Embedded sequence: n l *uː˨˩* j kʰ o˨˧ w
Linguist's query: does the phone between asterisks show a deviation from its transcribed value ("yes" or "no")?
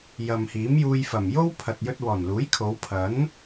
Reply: yes